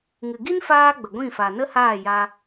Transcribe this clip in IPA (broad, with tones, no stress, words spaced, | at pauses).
ŋɨ˨ɡi˦nfaː˧ ɡ͡bə˨ɡʷĩ˦˨ fa˨nə˦haː˦˨ja˧